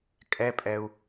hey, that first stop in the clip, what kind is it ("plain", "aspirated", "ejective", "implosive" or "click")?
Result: ejective